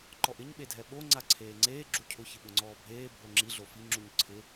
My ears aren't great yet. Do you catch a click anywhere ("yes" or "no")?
yes